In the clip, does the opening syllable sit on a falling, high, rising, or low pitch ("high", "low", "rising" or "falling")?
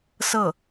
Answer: falling